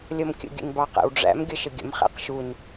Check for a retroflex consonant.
present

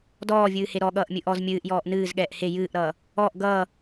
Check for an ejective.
absent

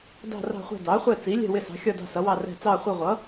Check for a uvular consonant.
present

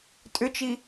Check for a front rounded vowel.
present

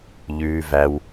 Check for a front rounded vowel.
absent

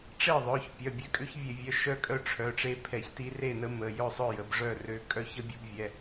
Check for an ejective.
present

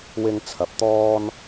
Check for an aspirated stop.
present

